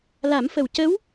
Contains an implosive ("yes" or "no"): no